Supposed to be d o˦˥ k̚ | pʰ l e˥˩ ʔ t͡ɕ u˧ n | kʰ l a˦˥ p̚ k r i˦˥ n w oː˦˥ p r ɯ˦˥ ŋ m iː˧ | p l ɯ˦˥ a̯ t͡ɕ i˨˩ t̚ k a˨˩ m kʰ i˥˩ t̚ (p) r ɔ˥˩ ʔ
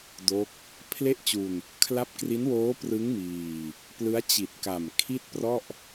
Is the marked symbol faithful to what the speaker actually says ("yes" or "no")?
yes